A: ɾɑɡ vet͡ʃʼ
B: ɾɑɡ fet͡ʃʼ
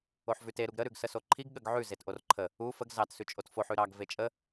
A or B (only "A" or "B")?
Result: A